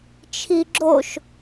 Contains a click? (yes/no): yes